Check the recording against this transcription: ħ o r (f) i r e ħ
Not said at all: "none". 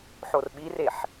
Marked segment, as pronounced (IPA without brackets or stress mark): ɓ